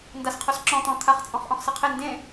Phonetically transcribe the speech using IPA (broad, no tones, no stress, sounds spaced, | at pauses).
n d a s qʰ o s ǁ ɔ̃ t̪ ɔ̃ t̪ʰ a χ t͡sʼ ɔ̃ χ ʔ ɔ̃ χ s ʌ qʰ e n d ẽ